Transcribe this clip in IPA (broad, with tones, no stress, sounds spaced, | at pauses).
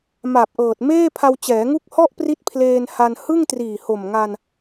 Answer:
m a˨˩ p̚ ʔ ɤː˨˩ t̚ m eː˥˩ pʰ a˧ w t͡ɕ ɛː˩˦ ŋ u˦˥ k̚ h ɔ˥˩ ʔ p r i˦˥ t̚ pʰ l eː˧ n h a˧ n h ɯ˥˩ ŋ t r iː˨˩ h o˨˩ m ŋ a˧ n